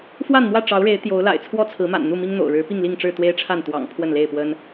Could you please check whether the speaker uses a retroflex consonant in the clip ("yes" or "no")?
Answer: yes